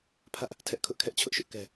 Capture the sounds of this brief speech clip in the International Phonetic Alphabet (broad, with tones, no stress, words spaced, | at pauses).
pʰä˦ʔ | tʰɛ˦ʔkʰʊ˦ʔkʰɛ˦ʔ t͡ɕʰʊ˦ʔʃʊ˦ʔ kɛ˦